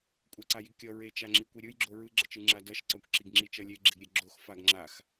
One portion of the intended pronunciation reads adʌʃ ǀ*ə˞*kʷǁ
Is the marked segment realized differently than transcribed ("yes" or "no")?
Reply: yes